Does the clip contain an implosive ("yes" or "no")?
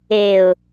no